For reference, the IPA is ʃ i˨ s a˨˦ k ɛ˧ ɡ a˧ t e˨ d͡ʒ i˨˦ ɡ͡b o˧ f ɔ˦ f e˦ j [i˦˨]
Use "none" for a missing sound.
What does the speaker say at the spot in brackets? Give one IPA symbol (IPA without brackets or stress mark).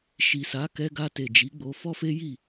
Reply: i˦˨